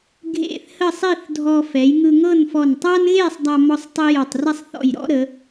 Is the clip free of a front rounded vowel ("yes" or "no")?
yes